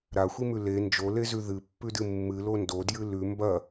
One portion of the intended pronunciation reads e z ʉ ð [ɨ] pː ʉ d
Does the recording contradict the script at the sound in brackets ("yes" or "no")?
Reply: no